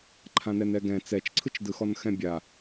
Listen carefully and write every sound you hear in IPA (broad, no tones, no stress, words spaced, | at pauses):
ǃʰãnɛnɛɡɛ̃ t͡sɛt͡ʃǀʰɯt͡ʃdɯxɔn xɛ̃bʲa